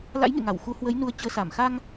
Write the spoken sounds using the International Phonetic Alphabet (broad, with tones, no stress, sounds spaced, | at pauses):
l a̰˧˥ j ŋ ḛ˧˨ ŋ a˧˩ w x u˨˦ h w ə˨˦ j n u˨˦ ə̯ t͡ɕ əː˨˦ s a˧˩ m x a˧ ŋ